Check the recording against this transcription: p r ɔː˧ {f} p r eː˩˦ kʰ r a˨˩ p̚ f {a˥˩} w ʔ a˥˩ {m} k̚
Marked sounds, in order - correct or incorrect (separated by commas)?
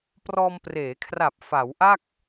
incorrect, incorrect, incorrect